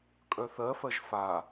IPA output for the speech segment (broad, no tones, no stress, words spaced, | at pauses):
kʼœθɜfɜʒ fa